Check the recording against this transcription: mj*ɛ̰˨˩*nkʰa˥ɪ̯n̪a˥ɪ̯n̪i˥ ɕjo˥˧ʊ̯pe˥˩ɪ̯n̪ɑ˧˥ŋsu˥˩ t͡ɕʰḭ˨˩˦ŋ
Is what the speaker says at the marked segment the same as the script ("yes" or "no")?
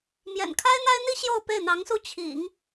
yes